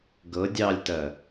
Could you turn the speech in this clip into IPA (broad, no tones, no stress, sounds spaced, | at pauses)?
ɡ ɤ dʲ ɑ lʲ t ɜ